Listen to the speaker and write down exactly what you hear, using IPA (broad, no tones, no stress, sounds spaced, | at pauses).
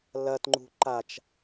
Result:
l ɐ t ŋ͡ǃ ṳ ǃ a t͡ʃ